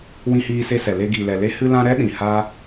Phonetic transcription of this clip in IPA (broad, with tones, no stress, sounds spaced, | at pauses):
w ĩ˧ h iː˧ s e˧ s ɛ˨ l e˧ ɡ i˨ l ɛ˨ l e˦ h ɨ˧ l ã˧ ɾ ɛ˦ ɗ ĩ˨ h a˦